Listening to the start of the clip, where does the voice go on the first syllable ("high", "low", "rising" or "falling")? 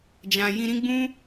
low